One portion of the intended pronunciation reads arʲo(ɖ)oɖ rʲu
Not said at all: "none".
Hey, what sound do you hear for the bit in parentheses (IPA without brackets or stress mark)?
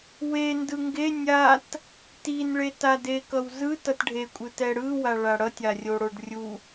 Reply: ɽ